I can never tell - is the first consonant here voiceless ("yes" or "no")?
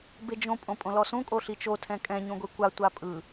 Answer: no